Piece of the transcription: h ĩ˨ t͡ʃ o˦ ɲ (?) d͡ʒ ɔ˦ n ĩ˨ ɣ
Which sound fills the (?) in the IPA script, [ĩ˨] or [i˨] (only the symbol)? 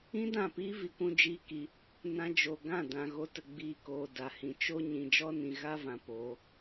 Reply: ĩ˨